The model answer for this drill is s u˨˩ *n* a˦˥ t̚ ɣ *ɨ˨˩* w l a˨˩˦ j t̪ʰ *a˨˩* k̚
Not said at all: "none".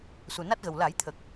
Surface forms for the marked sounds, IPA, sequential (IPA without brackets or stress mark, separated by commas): n, ə˨˩, ə˨˩